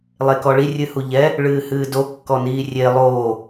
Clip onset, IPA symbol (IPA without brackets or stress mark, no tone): lˠ